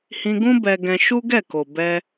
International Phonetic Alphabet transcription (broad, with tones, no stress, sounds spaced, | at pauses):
h ĩ˧ ɡ ũ˦ b ɛ˧ ɡ ɛ̃˧ ʃ u˦ ɡ ɛ˦˨ k o˨ b ɛ˧